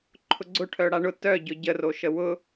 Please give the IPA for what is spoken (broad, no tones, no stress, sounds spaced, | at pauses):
ǃʰ ʊ ɡ͡ǀ ʊ ʈʰ œ ɽ a ɳ ʊ t œ ɟ ʊ ɟ ə r o ʃ ə w ʊ